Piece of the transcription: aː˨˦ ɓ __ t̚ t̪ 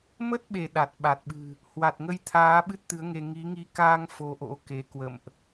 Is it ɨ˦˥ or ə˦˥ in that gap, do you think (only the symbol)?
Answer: ɨ˦˥